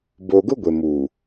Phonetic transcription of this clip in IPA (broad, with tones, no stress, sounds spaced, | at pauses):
b o˨ ɡ ʊ˦ ɡʷ e˨ m u˨